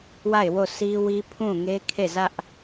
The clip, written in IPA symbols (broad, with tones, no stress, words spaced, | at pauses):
wa˦˨ɪ̯wo˦˨si˦ wi˦pʰũ˦˨ŋe˦ kʰe˦˨zä˦ʔ